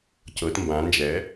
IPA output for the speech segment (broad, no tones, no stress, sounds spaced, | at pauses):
c ɤ t m b ã n d͡ʒ ɛ